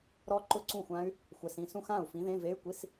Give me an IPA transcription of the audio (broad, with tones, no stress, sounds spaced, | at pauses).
ɾ ɔ˦˥ ǃ ʊ˥˩ ǀ ũ˥˩ xʷ ã˦˥ y̯ | xʷ ɛ˨ s ĩ˥˩ s ũ˥˩ x ã˥˩ u̯ f ĩ˨˥ ð ẽ˧˥˧ v e˧˥˧ y̯ kʷ i˧˥˧ s